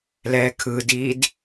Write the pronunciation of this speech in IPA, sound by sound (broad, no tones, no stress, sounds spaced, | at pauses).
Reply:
l ɛː kʰ ɯ d iː d